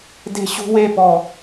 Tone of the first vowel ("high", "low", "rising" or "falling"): high